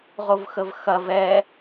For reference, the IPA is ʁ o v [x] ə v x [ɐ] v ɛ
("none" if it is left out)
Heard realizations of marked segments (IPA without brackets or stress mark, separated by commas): x, ɐ